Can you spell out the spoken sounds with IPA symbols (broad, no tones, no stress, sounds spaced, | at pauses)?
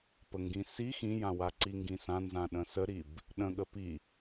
p ə ŋ ɡ ĩ s i x ĩ j ã w a ǀ i ŋ ɡ ĩ s ã n z ã ɗ ə̃ s ə ɾ i b | ɗ ə̃ ɠ ə p i